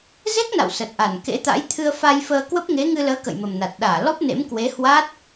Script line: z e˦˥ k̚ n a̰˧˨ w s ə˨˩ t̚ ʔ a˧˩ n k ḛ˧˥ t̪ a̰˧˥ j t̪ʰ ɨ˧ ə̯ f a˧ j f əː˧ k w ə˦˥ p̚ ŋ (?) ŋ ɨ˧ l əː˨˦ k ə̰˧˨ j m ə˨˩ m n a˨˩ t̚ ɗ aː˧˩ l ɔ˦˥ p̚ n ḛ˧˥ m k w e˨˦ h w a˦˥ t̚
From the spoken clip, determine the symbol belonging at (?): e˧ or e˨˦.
e˨˦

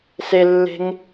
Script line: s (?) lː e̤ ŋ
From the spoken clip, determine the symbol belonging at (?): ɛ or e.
e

